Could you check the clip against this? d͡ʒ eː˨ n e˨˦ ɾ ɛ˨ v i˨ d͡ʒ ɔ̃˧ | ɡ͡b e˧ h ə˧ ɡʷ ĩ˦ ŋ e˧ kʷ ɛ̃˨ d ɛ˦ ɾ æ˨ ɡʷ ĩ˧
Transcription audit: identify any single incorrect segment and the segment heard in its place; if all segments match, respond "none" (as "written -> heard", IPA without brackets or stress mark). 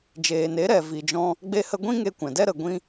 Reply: æ˨ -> ə˨